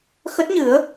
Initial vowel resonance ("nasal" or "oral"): oral